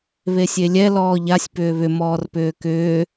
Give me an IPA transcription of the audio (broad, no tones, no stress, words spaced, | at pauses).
βesʲelʲɛ lɔːʎasʲ pʏːβʏ mɔːrpʏːkʏː